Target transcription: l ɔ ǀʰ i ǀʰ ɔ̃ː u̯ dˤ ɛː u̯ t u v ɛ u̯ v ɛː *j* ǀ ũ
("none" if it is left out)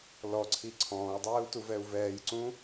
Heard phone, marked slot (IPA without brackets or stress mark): j